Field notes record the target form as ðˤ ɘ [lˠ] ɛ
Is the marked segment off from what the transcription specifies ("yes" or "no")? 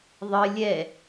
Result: yes